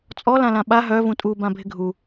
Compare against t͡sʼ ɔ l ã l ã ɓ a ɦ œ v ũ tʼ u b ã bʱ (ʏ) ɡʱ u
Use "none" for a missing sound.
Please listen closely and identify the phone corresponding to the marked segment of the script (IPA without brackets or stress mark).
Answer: ɪ